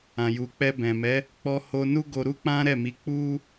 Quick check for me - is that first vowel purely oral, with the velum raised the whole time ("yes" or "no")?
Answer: no